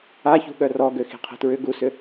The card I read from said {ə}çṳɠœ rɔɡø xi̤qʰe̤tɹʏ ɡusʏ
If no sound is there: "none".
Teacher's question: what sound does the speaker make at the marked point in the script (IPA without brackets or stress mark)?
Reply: a